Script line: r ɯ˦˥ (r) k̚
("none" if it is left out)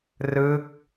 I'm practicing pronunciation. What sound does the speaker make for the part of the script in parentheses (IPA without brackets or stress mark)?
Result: none